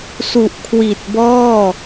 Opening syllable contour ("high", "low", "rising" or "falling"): low